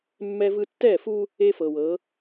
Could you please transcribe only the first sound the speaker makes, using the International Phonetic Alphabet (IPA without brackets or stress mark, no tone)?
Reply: mː